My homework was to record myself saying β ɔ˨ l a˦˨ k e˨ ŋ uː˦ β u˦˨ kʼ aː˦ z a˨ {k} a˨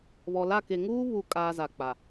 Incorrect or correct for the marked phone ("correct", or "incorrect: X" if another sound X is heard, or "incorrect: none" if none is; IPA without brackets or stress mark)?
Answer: incorrect: k͡p